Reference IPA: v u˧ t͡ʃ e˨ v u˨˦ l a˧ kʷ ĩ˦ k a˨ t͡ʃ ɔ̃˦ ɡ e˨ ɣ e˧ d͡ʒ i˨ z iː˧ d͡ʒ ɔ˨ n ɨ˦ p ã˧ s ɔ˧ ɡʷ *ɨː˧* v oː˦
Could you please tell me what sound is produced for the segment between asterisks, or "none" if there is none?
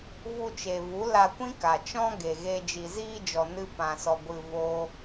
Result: ɨ˧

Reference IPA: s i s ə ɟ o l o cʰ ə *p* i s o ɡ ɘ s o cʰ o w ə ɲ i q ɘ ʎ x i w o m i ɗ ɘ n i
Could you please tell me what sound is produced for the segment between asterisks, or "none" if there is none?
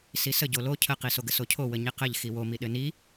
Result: q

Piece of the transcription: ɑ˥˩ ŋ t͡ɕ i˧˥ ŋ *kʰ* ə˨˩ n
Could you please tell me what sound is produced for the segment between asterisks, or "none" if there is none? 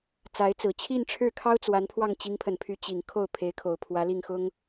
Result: pʰ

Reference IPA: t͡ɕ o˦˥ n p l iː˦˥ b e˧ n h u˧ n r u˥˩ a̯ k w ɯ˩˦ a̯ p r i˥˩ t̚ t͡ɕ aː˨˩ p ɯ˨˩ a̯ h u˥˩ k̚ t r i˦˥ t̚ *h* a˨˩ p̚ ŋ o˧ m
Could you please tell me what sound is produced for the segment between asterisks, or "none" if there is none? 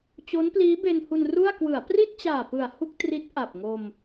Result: ʔ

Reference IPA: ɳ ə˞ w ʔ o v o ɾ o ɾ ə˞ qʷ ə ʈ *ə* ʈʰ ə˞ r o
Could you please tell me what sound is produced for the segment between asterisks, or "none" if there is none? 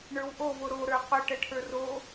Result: ə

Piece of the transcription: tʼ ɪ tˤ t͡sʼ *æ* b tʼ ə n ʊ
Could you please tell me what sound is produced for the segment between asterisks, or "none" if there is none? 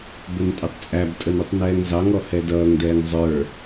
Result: æ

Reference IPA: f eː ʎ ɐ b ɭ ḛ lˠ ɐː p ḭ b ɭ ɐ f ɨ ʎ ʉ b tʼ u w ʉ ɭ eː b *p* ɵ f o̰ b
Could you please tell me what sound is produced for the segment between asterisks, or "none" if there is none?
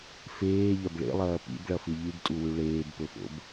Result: p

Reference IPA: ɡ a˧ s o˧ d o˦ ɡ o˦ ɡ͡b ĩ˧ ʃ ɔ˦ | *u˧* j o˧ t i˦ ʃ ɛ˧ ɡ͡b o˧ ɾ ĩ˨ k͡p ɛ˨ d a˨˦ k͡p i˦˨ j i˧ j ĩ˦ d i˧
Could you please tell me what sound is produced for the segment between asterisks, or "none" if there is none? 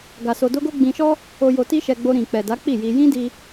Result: o˧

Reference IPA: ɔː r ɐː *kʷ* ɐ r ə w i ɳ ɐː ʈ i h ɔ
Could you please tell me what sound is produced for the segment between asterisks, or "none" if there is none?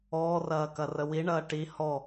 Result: k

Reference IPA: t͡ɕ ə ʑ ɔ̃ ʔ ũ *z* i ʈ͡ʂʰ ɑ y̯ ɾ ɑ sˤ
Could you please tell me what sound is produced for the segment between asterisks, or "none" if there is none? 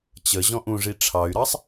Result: ʐ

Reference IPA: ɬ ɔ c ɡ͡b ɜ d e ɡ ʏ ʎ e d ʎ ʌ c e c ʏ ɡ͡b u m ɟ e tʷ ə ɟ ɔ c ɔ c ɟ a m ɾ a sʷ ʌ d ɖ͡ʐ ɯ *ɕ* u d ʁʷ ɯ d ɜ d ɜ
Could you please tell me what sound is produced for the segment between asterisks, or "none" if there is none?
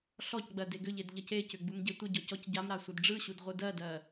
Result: ɕ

